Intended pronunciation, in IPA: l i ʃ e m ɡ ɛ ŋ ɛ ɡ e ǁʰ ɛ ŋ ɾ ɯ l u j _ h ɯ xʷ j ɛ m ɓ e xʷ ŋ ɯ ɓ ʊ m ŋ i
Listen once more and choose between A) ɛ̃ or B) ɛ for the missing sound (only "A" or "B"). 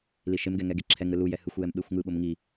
B